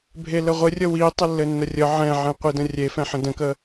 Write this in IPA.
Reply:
bʱ e l ə ʁʷ ɘ rʲ ə w i tˤ ə lː ɘ nː ə rʲ ə ʕ ɛ̃ ʕ ɛ̃ qʷ i d ə̃ rʲ e f ɛ̃ ħ ə̃ d ə̃ k ə

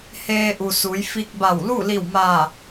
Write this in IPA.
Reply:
h eː˧ ʔ u˩ s u˩˧ j f i˧ k̚ b a˧˩ w l u˥˨ l i˧˩ w m aː˧˩

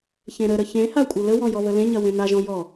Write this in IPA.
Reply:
ç ẽ ɾ ə ɾ ə ç ẽ h a kʷʼ ɘ l ə w ɔ̃ j ɔ β ə l ẽ ɲ ɐ w ẽ n a ʒ ɔ̃ j ɔ

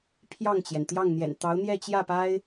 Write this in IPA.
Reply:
pʰ j ɑ˥˩ ŋ t͡ɕ j ɛ˩ n t̪ j ɑ˥˩ ŋ n̪ j ɛ̰˨˩ n t̪ ɑ˧˥ ʊ̯ n̪ j ɛ˥˧ t͡ɕ j ä˥˩ p a˥ ɪ̯

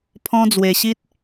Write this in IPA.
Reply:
pʰ ɔ̃˧ d͡z w e˨˩ ɕ i˦ t̚

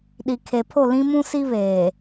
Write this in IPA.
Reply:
ɗ i˨ kʰ eː˨ pʰ o˦˨ l ĩ˦ m ũ˦ s i˦ β eː˨

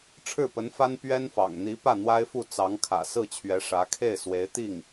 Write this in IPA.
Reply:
ʈ͡ʂʰ ɻ̩˥˩ p ə˧˥ n f a˥ n p ɥ ɛ˥ n f ɑ̰˨˩ ŋ n̪ i˧˥ p ä˥˩ n̪ w a˥ ɪ̯ f u˥˩ t͡s ɑ˧˥ ŋ kʰ ä̰˨˩ s ɹ̩˥˩ t͡ɕʰ ɥ ɛ˧˥ ʂ ä˧˥ kʰ e˥˩ ɪ̯ s w e˧˥ ɪ̯ t̪ i˥˩ ŋ

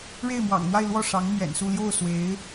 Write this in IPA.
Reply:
ɻ e˥˩ ɪ̯ m w ɑ̰˨˩ ŋ n̪ w a˥˧ ɪ̯ l w ɔ˥˩ ʂ ɑ˧˥ ŋ n̪ ɥ ɛ̰˨˩ n s u˥˧ l j o˥˩ ʊ̯ s w e˧˥ ɪ̯

